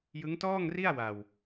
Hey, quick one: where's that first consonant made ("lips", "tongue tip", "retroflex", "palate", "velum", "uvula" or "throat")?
palate